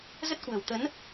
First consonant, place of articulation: alveolar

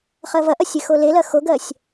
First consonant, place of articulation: uvular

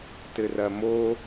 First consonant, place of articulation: alveolar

